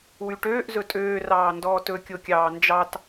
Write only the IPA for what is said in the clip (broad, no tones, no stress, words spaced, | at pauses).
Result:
wyʈøːʔ zɵtʼøː rɑːndɔːtɵ kʲokʲɑːnd͡ʒɑt